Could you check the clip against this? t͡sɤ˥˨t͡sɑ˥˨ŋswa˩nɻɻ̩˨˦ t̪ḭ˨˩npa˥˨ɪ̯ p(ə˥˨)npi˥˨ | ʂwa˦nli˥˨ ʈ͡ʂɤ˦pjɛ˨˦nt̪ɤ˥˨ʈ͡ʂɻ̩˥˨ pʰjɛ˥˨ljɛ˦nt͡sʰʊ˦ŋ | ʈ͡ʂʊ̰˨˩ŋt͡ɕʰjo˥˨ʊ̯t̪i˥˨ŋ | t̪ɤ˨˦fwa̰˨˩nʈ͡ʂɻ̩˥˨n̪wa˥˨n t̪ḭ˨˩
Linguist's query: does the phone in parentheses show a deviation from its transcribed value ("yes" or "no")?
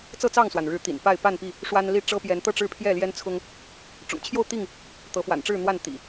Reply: yes